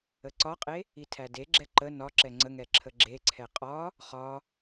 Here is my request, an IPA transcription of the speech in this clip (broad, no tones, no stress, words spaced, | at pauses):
əǀɒqʼe | itʰædeɡ͡ǁɛ ǃə nɒ ǁɛŋ͡ǀəŋɛ ǁʰəɡ͡ǁeǀʰɛ qʼɒ | χɒ